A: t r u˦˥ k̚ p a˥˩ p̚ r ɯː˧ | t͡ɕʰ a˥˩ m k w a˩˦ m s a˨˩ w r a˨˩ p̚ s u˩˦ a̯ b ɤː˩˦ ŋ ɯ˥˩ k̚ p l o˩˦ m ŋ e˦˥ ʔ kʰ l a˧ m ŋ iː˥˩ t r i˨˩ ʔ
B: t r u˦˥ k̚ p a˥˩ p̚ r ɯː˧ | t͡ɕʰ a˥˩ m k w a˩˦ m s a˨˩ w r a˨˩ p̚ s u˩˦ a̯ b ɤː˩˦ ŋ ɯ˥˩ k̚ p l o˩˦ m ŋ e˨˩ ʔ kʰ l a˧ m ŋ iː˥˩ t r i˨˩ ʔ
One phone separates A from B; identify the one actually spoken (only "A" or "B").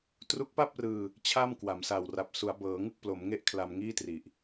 A